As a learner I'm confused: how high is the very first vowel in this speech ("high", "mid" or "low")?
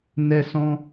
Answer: mid